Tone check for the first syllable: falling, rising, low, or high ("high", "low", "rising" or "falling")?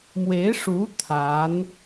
rising